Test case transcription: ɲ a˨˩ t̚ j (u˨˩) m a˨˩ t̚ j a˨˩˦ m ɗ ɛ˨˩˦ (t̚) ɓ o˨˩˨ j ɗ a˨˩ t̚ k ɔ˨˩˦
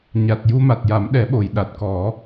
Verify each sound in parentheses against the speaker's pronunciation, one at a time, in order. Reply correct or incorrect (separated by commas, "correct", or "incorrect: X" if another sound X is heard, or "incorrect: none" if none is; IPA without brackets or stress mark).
incorrect: u˧, incorrect: none